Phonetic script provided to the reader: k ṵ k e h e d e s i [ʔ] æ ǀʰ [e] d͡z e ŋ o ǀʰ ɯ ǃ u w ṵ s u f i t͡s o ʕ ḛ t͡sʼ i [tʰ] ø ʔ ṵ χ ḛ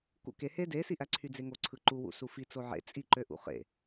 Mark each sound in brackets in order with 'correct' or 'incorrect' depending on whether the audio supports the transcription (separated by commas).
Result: correct, incorrect, incorrect